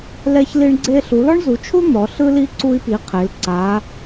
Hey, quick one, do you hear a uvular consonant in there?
yes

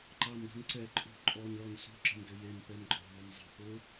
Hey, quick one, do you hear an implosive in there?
no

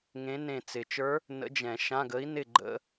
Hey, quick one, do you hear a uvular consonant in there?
no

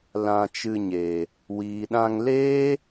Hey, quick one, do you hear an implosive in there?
yes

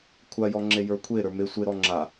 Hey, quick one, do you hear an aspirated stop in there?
yes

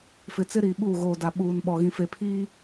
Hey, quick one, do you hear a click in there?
no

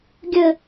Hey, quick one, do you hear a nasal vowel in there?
no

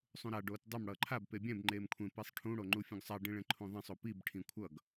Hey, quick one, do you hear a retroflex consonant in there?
yes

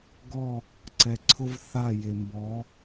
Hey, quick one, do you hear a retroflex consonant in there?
no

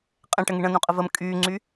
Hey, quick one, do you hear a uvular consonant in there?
yes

